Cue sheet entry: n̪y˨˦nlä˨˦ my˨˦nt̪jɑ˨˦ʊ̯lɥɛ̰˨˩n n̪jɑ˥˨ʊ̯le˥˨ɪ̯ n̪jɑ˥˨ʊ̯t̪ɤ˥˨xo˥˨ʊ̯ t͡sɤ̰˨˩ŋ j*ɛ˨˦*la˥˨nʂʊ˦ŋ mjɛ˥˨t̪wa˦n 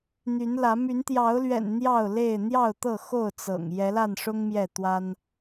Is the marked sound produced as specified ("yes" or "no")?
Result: yes